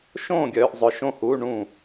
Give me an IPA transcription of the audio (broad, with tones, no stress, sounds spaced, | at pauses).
ʃ õː˥˨ ɡʲ œː˧ ʔ zˤ œ˧ ʃ õ˥˨ h uː˧˥˧ ɳ ũ˥˨